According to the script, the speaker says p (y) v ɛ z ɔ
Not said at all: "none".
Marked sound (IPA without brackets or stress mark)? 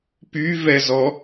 y